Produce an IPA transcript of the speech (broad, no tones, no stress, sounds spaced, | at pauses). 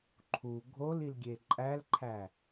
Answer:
ǃʰ u ɡʱ o l i l ɡʲ e ǃʼ æ l ǃʰ æ